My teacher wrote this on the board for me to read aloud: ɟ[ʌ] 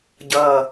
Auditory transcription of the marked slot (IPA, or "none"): ʌ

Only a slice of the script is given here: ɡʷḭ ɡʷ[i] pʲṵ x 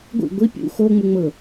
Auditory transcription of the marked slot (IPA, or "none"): i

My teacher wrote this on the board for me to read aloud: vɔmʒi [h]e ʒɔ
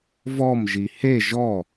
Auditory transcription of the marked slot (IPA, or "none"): h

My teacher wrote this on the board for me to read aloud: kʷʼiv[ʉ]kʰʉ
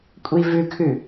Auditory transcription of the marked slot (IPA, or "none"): ʉ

